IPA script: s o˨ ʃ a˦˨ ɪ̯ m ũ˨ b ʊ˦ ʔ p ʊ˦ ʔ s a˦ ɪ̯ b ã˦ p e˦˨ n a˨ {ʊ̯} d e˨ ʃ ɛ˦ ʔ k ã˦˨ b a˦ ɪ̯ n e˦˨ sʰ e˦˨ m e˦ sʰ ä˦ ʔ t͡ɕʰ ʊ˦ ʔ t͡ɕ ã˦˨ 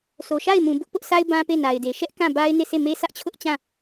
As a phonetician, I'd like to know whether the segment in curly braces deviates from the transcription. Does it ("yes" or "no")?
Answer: yes